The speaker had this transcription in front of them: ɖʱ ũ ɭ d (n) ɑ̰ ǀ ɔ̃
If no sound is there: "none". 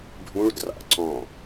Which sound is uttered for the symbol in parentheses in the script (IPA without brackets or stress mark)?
r